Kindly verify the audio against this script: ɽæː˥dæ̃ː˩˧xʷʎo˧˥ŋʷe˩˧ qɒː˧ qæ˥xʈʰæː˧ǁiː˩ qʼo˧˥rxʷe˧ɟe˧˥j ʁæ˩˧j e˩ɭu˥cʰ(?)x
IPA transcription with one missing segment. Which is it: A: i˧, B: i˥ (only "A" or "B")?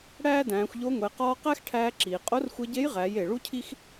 B